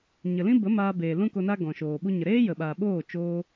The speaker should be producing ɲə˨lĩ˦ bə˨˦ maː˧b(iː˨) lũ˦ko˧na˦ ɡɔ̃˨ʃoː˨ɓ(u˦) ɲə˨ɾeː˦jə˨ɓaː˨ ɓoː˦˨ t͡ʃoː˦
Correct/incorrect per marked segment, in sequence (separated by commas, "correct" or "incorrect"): incorrect, correct